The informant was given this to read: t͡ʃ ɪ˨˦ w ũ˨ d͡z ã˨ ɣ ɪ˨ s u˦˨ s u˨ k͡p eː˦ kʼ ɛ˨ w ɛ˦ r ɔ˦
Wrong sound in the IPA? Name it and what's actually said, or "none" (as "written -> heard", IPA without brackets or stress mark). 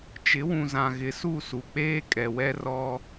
d͡z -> z